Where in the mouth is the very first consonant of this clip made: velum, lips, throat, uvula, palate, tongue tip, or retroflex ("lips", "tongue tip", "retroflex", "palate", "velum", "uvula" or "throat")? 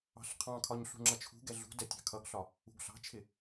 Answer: tongue tip